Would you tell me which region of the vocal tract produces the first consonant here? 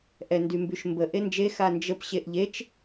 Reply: throat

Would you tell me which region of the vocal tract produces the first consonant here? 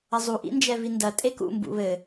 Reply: tongue tip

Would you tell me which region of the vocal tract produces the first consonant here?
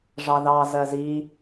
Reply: retroflex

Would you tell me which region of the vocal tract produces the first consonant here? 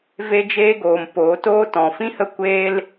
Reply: lips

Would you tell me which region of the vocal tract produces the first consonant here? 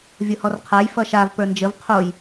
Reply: lips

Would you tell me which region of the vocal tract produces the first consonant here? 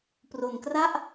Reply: lips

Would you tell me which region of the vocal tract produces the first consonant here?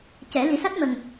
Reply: palate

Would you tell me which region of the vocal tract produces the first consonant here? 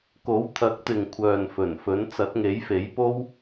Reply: velum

